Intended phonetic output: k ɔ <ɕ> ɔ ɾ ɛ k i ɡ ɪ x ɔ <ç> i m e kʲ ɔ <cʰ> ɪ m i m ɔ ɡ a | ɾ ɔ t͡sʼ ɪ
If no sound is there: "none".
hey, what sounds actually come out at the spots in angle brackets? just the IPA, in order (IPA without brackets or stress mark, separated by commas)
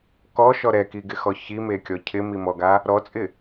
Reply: ʃ, ç, cʰ